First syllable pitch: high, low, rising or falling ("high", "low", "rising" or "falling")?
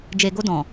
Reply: low